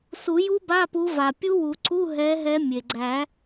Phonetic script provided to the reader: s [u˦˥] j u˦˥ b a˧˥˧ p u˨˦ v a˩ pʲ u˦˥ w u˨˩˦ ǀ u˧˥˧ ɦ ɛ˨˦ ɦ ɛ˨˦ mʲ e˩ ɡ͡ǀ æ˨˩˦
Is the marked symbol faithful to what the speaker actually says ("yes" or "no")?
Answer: no